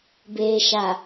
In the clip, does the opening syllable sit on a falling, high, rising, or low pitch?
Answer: low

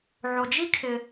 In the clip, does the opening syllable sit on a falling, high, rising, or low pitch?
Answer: low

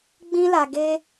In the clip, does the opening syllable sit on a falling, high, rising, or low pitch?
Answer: high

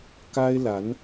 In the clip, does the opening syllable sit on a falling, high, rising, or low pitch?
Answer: high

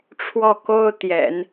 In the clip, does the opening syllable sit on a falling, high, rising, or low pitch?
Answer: falling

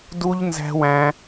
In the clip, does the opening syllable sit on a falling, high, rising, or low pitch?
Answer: high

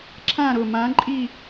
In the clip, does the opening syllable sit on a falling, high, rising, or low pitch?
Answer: falling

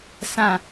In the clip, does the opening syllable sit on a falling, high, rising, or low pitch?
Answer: falling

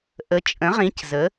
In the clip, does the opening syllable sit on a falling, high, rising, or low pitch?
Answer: rising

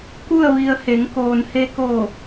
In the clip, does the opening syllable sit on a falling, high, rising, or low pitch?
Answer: falling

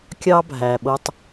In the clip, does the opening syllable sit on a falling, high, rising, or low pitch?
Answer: high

